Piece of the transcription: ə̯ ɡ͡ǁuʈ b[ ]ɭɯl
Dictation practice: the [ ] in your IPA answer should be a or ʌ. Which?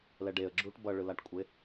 ʌ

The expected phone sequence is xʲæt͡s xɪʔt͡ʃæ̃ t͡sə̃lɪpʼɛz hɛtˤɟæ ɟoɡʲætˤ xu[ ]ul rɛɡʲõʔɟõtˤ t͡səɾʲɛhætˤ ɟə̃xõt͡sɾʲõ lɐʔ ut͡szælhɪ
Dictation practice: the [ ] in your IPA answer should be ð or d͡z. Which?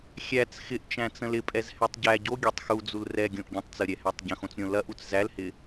d͡z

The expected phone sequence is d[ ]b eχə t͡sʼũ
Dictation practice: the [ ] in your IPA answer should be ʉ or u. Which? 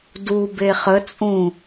u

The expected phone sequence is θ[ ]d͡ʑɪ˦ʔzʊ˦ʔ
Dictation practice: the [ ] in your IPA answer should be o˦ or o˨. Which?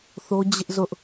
o˦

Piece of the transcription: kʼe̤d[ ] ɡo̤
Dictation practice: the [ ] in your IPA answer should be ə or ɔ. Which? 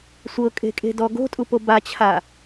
ɔ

